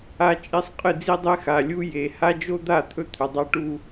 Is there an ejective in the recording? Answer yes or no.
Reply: yes